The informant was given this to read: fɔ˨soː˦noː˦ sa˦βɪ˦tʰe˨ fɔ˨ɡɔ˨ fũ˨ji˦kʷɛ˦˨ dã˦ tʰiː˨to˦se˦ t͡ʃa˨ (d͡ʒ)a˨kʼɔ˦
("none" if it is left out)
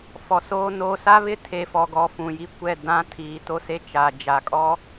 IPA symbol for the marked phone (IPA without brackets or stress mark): d͡ʒ